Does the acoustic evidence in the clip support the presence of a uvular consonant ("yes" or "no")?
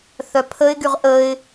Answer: yes